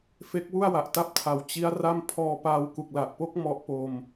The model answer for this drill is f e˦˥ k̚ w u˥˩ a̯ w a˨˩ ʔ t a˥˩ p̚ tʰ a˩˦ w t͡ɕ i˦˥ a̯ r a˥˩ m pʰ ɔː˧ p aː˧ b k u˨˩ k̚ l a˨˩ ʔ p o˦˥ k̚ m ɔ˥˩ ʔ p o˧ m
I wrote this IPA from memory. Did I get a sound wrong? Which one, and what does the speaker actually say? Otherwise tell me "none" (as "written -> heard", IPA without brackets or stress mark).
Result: b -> w